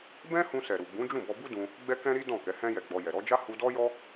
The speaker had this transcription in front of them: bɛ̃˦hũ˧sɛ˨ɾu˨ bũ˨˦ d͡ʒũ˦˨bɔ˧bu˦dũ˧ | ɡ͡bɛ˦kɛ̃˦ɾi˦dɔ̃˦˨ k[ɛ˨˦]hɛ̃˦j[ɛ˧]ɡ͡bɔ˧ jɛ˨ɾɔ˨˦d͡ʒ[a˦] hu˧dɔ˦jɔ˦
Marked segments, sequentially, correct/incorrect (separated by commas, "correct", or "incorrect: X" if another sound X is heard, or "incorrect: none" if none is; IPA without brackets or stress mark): correct, correct, correct